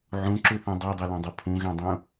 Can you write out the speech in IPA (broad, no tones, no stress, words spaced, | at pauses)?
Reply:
ʕũǁuθũ dˤɛdˤɤlɔ̃dˤɤ pʰũɣɛ̃dˤũ